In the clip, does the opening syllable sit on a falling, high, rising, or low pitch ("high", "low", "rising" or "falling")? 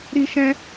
high